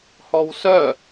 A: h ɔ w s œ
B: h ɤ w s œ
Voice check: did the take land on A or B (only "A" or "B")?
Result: A